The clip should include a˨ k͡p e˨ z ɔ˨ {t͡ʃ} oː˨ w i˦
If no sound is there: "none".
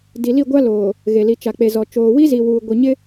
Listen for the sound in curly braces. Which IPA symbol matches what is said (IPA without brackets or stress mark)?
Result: t͡ʃ